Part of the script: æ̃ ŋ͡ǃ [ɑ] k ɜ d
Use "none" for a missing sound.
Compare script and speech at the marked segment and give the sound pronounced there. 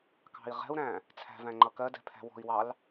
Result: ʌ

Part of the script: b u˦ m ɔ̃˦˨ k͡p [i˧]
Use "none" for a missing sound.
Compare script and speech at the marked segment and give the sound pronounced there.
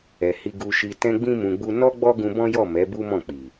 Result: i˨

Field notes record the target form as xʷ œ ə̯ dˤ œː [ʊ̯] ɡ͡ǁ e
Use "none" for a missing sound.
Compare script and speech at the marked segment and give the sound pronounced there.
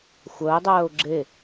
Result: ʊ̯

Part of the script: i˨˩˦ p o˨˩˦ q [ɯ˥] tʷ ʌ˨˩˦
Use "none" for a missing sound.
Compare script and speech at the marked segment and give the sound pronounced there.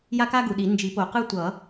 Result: ɯ˥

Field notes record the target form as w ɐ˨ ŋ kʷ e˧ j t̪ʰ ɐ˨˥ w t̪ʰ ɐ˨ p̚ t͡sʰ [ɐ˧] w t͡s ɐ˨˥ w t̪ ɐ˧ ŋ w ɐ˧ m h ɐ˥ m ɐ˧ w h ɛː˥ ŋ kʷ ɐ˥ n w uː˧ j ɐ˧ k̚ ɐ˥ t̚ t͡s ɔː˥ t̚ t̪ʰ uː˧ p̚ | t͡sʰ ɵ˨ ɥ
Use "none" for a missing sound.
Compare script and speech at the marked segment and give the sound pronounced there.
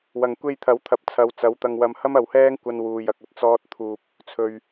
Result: ɐ˨˧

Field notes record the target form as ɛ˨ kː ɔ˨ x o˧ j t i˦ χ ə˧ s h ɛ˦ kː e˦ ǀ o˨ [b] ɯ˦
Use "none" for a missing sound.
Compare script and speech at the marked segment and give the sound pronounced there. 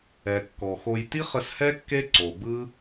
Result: b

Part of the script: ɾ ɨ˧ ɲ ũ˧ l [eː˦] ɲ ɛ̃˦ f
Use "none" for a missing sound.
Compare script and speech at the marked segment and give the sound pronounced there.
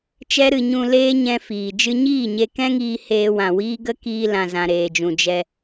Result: eː˦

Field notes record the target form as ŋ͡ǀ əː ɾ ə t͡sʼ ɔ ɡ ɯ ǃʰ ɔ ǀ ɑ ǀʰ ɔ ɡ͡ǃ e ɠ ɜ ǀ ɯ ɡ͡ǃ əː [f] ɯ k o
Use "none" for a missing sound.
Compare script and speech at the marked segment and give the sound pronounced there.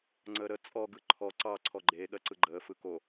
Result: f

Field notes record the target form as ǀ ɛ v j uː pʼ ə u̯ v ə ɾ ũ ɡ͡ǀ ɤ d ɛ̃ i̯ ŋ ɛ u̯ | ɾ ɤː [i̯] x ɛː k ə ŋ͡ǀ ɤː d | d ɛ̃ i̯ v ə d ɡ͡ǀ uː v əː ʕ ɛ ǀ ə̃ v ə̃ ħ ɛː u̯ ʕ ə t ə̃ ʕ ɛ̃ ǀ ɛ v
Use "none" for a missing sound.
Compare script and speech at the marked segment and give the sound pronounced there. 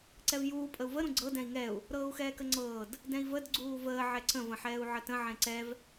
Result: u̯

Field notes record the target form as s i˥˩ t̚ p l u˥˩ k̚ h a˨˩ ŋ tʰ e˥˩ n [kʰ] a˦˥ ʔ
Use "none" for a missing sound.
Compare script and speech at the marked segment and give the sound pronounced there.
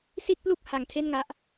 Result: ŋ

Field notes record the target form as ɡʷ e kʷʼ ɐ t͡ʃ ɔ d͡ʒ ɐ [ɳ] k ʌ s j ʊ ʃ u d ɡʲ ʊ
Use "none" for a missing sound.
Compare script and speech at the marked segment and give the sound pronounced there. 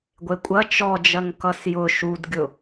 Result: ŋ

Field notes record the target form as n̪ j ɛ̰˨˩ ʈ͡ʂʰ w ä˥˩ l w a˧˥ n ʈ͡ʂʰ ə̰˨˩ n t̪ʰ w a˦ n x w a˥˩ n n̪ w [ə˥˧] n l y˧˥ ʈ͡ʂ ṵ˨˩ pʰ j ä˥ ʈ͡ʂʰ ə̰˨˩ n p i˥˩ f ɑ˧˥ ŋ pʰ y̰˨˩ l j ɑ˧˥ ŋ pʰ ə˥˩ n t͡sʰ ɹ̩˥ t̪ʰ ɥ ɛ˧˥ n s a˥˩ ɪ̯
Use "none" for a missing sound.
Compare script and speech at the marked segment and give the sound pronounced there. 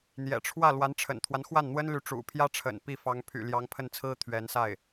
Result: ə˥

